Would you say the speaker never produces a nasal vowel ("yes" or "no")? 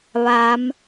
yes